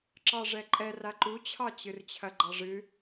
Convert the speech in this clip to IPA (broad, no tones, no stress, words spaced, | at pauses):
ǁɑʐɛǃʼɛ raǃut͡ɕʰɑ t͡ɕɨrt͡ɕʰɐɡ͡ǃɑʐɨ